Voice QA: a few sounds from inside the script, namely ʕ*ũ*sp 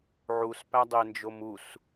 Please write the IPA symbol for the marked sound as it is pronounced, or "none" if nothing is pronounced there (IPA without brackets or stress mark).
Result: u